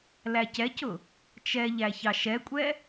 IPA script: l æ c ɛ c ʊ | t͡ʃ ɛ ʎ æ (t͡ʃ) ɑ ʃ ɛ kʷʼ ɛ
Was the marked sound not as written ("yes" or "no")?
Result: yes